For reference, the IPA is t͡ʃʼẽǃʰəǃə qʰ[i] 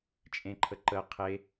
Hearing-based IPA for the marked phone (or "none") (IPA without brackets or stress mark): e